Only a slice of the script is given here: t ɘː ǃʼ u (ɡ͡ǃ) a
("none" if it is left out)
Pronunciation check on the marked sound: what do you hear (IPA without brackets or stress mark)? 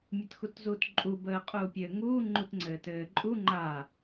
ŋ͡ǃ